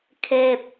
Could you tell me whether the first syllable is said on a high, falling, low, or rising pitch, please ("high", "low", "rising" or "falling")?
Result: low